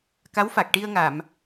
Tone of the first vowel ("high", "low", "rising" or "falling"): rising